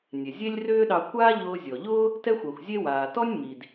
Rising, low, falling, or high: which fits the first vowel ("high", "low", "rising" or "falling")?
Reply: low